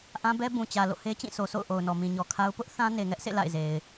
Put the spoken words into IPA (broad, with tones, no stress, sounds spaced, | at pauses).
ʔ ã˦ b ɛ˦ b ũ˨ t͡ɕ ä˨ l o̰˦˨ h e˦ t͡ɕ ĩ˦˨ sʰ o˨ s o̰˦˨ ʊ̯ ʔ o˨ ʊ̯ n ɔ˨ m ĩ˨ ɲ ɔ˨ kʰ a˦ ʊ̯ p ʊ˦ ʔ θ ã˦ n e˨ ŋ ɛ˦ ʔ sʰ ḛ˦˨ l a̰˦˨ ɪ̯ z e˨ ɪ̯